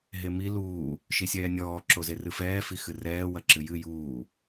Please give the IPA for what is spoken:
ɦ e m i l uː | ʃ i sʲ ɛː nʲ ɔː ǁ o z e r ɨ f ɛː f i x ɨ r ɛː w ɐ ǁ ɨ j ɨ j uː

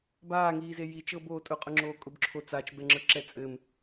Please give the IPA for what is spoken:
b aː ŋ iː z e j i t͡ʃ ɤ b oː tʼ ʊ qʼ ʊ ŋ͡ǁ oː kʼ ʊ b ǁʰ o t͡s a t͡ʃ b ɛ ŋ͡ǁ ə˞ ǁ ɛ t͡sʼ ɘ m

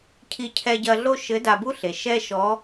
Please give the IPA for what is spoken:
cʰ i˧ cʰ ɛ˧ ɟ ɐ˧ ɮ o˥ ʃ ɘ˧˥ d a˧ b u˥ ɬ e˩ ʃ ɛ˥ ʃ ɔ˧˥

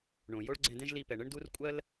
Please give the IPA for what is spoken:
ɳ õ˩ j o˥ ɭ ɡ͡ǀ ɛ̃˧ d ɛ̃˥ ʒ l i˧ p ɛ˩ ɳ ə˥ ɳ d u˥ r kʷʼ ɜ˥ l

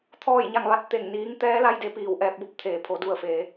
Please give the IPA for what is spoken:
t̪ʰ ɔː˥˨ j ɲ a˥˨ ŋ ʋ a˧˥ t̚ t̪ e˧˩ ŋ n iː˧˥ ŋ t̪ ɛː˧˥ l a˧ j d e˩˧ p iː˩ w ʔ ɛː˧ p̚ b o˧ p̚ t̪ʰ eː˩ pʰ o˩˧ d u˧˩ ə̯ f eː˩˧

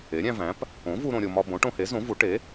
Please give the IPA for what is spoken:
e˩˥ ɾʲ æ̃˧ v æ̃˩˥ p | õ˩˥ v u˧ ɾ õ˧ ɾʲ o˧ m ɒ˧ b õ˩˥ ʈ õ˧ h e˩˥ z õ˩˥ v u˩˥ ʈ e˩˥

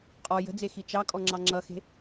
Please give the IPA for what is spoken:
qʼ ɔ j ə̤ d͡z e x i t͡ʃ ɑ kʼ ɔ ŋ͡ǁ ɑ ŋ͡ǁ ʌ x e̤

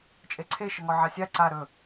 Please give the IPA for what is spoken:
t͡ʃʼ e ǀʰ e ʃ ə ŋ ɔ ʕ a sʲ a ǀ a ɾ ɵ

